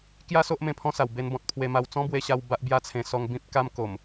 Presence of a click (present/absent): absent